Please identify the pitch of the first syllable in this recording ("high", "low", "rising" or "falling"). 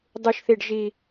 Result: low